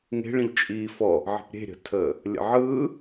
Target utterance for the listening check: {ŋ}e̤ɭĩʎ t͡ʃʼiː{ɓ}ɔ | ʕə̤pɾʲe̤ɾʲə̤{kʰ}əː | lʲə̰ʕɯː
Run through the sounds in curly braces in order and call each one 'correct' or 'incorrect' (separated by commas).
correct, incorrect, incorrect